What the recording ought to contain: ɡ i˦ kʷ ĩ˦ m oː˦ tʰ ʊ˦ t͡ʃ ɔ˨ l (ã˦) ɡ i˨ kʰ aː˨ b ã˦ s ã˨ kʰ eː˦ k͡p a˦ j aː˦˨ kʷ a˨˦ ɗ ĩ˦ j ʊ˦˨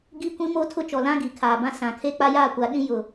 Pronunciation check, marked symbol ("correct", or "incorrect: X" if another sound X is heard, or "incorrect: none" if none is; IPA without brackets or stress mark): correct